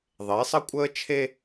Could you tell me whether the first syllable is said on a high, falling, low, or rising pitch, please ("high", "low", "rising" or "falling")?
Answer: rising